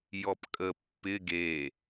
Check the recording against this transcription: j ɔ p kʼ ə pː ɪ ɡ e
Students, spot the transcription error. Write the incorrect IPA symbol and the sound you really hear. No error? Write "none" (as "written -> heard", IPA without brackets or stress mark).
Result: none